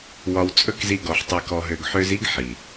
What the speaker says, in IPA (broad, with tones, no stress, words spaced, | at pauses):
wɒ˧w t͡sʼɵ˦kzi˧ ɡɔ˨ħtˤi˨kɔ˨ɦø˨ɡ ħø˧zi˦ɡ ħi˨